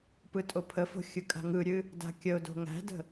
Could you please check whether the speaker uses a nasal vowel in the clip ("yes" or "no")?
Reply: no